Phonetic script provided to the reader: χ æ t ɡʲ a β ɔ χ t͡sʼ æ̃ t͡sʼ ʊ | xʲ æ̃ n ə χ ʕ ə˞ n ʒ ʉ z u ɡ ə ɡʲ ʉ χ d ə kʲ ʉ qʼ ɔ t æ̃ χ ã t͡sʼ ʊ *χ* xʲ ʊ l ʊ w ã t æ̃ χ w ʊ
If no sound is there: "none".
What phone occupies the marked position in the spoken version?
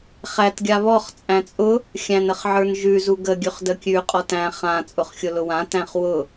χ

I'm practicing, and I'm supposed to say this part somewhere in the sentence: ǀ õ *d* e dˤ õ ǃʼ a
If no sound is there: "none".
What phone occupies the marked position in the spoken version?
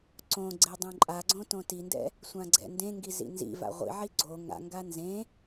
ɡ͡ǀ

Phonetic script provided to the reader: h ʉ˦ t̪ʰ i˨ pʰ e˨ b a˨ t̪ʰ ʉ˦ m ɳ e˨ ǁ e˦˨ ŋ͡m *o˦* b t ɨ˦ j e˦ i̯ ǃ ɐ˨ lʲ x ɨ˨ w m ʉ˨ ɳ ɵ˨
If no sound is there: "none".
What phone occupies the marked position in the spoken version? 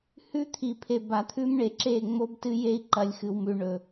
o˦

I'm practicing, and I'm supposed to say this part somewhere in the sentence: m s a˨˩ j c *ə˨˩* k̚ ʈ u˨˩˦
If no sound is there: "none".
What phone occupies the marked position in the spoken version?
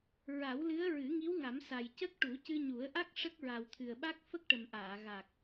ə˦˥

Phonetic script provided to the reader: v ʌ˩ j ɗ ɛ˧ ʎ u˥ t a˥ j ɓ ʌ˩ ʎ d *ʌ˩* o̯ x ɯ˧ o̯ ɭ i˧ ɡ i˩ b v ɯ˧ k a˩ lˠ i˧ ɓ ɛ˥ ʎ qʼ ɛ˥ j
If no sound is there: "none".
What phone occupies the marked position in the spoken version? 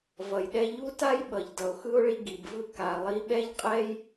ʌ˩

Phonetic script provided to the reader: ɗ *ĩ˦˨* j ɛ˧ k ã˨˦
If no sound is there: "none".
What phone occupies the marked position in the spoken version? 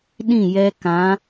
ĩ˦˨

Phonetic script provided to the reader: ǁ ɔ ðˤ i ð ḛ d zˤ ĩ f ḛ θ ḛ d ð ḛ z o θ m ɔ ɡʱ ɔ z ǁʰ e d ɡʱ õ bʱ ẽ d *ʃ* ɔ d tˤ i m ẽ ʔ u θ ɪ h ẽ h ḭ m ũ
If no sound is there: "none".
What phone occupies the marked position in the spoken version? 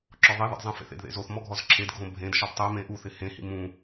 ʃ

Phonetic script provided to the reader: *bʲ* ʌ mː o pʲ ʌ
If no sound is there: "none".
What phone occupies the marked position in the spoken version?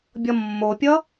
bʲ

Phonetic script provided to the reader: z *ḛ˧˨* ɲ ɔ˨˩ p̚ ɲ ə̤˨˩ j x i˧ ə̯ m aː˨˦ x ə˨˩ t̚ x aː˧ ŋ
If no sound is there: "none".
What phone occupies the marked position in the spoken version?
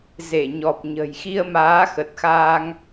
e˧˩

